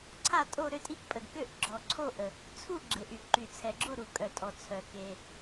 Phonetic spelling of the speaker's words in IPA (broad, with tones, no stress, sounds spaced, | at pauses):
ǀʰ a˦˨ tʼ o˦˨ ɾ ø˦˨ tʼ i˦˨ k pʼ ə˩ d k ø˦˨ ʔ ɡ͡ǁ ɔ˩ ǀʰ o˦˨ ʔ ə˩ | t͡sʰ u˦˨ ɡ͡ǁ e˩ ʔ y˩ ǃ y˩ t͡sʰ ɛ˩ ɡ͡ǁ o˦˨ ɾ u˩ kʼ œ˩ tʼ ɔ˩ t͡sʰ œ˩ k e˩